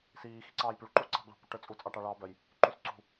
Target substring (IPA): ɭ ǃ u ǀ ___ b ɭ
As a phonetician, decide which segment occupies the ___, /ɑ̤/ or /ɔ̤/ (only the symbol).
ɑ̤